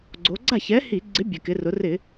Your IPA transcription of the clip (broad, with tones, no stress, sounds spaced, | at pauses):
ɡ͡ǀ o˩˧ ɡ͡ǀ a˥˩ ç ɛ˨˥ h i˧˩˧ ɡ͡ǀ ɪ˨˥ bʲ ɛ˩ k ɪ˩˧ r ʊ˩˧ r ɪ˧˩˧